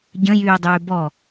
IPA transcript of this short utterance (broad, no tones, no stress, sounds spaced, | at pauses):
ɟ ə̃ j yː dˤ yː b ɔ